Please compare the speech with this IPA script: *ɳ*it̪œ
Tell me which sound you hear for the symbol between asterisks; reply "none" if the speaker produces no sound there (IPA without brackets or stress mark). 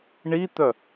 ɳ